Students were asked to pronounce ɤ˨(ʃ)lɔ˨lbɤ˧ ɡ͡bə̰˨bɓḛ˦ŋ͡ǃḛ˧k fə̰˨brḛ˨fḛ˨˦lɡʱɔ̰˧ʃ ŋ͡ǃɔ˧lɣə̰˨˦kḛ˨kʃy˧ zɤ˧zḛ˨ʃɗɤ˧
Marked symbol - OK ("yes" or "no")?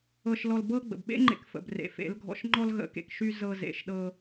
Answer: yes